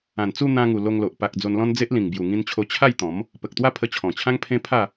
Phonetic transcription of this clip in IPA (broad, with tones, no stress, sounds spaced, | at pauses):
ã˨˩ n t͡s u˥˧ n̪ ã˧ ŋ u˨˩ l o˧ ŋ l o˨ ʔ p a˨ k̚ d͡z o˧ n l ɔ̃˦ n d͡z e˦ ʔ l ĩ˨˩ ŋ b j u˨˩ ŋ ĩ˧ n t͡ɕʰ o˧ t͡ɕʰ a˥˧ j t̪ ɔ̃˨˦ m | p ə˨ k̚ t̪ w a˥˧ pʰ ə˧ t͡ɕʰ ɔ̃˨˩ t͡ɕʰ ã˦ ŋ pʰ ẽ˦ pʰ a˥˧